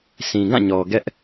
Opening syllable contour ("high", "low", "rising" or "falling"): low